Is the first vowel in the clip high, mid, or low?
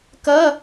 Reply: mid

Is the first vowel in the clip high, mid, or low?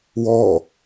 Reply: mid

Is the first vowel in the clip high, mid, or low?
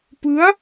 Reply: high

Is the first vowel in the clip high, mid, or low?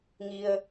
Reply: high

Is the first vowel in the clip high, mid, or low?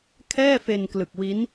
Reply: mid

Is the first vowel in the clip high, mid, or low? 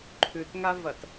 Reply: high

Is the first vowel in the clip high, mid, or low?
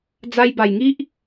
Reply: low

